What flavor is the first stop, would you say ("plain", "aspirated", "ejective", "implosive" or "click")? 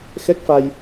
plain